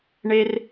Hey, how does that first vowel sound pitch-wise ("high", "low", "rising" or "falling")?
high